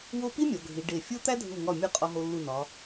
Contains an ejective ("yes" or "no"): yes